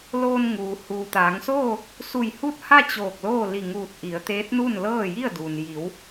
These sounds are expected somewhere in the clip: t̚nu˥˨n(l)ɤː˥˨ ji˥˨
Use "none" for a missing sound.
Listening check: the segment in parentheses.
l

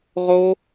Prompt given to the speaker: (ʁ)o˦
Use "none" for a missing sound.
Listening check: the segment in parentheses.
ʁ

